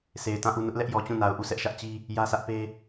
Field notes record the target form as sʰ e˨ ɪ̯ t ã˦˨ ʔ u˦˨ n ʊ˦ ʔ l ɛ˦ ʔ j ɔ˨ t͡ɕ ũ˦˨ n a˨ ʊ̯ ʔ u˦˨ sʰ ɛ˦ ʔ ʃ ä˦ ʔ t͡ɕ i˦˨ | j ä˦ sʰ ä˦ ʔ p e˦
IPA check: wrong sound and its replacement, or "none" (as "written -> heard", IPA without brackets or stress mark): i˦˨ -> i˦